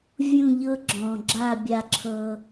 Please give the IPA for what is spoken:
vʲ ũ˥˧ ʎ ɤ˥ ɡ͡ǁ ɔ̃˧ ɡ͡ǁ a˥˧ bʲ a˥˧ ǁʰ ɤ˥

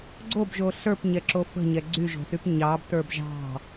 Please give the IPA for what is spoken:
ɡ͡ǀ o b ʒ o ɬ ə˞ p ɲ ɛ ǁ o f ə̤ ɲ ɛ ɡ͡ǀ y ʒ o̤ s y p ɲ ɑ b t ə˞ b ʒ ɑ̤

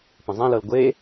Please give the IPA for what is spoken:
p ə̃ zˤ ẽ l ɤ l ɡʷ e

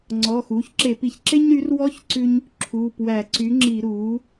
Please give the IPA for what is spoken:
ŋ͡ǀ ɔː˩˧˩ x uː˩˥ ç ǁ e˧˩˧ p i˧˩˧ ç ǁ e˥ ɲ ɾ y˩˥ r w ɔ˧˥ ç ǀ ʉ˥ ɲ | ǁʰ uː˩˧˩ p w æ˧˩˧ ǀ y˩˥ ŋ͡ǁ i˧˩˧ ɾ uː˩˥

